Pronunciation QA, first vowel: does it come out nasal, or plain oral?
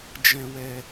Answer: nasal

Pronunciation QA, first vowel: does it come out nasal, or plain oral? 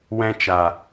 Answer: nasal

